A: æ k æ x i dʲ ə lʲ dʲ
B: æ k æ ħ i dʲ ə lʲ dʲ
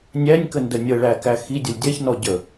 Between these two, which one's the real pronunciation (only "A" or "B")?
A